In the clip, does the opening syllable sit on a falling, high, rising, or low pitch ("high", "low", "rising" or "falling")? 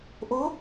rising